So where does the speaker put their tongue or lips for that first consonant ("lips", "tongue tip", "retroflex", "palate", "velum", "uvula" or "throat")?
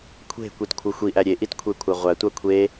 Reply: velum